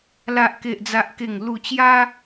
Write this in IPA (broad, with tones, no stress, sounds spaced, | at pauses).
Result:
l a˨ ʔ k e˨ ʔ d͡z a˨ ʔ k e˨˩ ŋ l u˨˩ t͡ɕ j a˧